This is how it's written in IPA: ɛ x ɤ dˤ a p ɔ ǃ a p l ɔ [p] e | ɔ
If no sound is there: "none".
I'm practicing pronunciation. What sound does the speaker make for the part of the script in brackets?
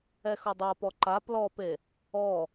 p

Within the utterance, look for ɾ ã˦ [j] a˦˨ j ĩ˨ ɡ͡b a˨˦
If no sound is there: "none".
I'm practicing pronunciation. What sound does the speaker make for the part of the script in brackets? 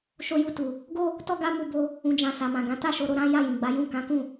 j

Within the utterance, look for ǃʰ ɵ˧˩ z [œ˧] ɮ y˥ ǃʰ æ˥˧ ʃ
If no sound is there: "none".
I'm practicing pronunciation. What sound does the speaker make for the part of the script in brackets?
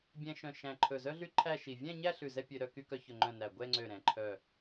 œ˥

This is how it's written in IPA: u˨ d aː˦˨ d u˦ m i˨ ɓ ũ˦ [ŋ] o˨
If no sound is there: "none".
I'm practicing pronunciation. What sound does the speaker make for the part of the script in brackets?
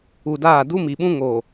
ŋ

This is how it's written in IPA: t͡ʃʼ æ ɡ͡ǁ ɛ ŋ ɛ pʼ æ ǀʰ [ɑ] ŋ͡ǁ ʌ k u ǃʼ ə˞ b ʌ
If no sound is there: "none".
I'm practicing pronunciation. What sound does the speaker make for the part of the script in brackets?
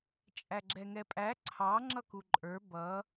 ɑ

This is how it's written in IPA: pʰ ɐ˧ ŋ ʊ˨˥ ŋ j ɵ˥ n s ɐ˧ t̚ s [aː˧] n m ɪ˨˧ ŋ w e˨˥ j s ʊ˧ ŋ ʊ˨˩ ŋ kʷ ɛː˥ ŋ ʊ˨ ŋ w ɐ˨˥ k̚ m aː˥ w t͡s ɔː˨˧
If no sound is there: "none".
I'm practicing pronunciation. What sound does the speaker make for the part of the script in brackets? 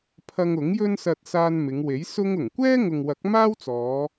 aː˧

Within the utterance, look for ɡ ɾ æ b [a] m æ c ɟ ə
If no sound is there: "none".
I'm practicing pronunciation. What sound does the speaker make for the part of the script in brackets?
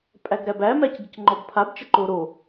æ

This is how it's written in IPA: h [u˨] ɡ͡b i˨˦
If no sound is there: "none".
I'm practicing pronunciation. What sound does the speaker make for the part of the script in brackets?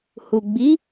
u˨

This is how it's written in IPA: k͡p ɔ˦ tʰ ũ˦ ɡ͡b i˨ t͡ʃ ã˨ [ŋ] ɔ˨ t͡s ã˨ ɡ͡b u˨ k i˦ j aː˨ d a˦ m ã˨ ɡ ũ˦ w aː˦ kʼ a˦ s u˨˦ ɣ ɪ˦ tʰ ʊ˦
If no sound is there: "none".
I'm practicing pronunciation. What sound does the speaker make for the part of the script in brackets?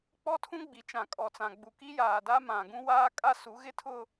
kʼ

